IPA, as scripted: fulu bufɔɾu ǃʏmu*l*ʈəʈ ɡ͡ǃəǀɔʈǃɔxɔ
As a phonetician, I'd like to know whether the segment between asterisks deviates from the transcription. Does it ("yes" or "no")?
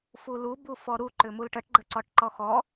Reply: no